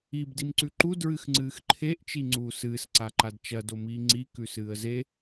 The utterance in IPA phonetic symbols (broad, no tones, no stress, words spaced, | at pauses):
ib dimǀʉǃu dɹɨxŋ͡ǀɨːxǃʰeʔ t͡ʃiŋ͡ǀuːsɨːs ǀaǃadt͡ʃɐ domiːŋ͡ǀi kʉsɨːə̯ze